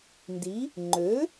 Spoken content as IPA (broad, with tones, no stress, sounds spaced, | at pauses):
n d i˩˥ | ŋ͡ǃ ø˩˥